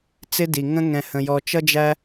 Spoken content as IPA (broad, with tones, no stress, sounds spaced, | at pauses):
t͡s ɪ˧ d i˨ ŋ ə̃˧ ŋ ɛ̃˨ h ə̃˨ j ɔ˨ t͡ʃ ʌ˧ d͡ʒ æ˧